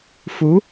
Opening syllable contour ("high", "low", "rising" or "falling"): rising